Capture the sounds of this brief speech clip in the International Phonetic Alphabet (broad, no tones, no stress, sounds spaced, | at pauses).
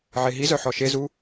ʕ e ɦ i z œ ħ ɔ ʃ e z u